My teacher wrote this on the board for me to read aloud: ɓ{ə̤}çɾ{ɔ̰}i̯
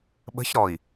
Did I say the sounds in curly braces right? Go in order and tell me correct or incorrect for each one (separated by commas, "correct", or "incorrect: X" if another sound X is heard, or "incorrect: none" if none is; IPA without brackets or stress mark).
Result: correct, incorrect: ɔ